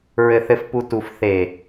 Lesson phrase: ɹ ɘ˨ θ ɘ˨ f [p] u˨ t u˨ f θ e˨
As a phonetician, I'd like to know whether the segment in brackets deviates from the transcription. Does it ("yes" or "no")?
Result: no